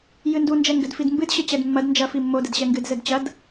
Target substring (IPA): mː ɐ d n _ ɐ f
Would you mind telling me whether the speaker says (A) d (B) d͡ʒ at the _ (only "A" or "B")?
B